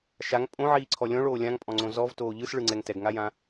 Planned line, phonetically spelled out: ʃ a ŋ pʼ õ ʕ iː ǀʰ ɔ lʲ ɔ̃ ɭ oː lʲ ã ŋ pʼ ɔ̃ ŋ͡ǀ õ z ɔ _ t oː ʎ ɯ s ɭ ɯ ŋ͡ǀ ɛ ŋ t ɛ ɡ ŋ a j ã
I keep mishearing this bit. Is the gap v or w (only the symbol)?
v